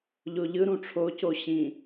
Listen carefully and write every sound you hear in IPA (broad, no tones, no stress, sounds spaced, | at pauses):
ʎ o ʎ ɯ ɾ ũ ʈ͡ʂʰ o c o ɕ ĩ